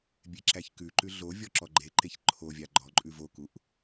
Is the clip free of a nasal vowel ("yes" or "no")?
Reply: yes